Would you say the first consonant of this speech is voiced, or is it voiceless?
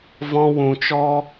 voiced